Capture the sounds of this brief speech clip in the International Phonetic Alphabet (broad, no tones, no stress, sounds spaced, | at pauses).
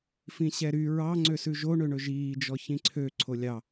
f ĩ ɕ ɛ ɾ y ɹ ɑ ŋ͡ǀ ø s ʉ ʒ o ɳ ø ɳ ɵ ʒ iː d͡ʒ ɔ ç ĩ ǀʰ ø ǀʰ o lʲ ɑ